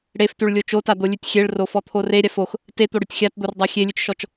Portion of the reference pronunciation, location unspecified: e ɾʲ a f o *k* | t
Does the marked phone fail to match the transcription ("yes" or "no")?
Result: yes